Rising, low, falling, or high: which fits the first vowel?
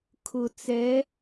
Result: low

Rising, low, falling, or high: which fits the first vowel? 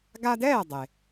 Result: high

